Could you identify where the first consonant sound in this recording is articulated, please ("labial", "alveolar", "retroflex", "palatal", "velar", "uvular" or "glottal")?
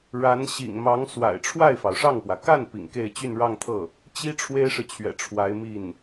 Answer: retroflex